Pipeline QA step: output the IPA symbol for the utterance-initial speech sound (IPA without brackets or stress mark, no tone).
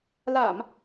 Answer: l